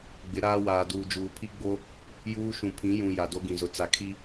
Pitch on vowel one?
rising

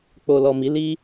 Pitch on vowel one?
low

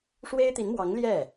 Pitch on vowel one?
high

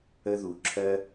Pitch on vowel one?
high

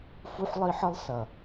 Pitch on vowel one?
high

